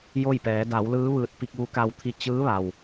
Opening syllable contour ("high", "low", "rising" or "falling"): falling